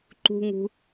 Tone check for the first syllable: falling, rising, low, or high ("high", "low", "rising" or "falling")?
high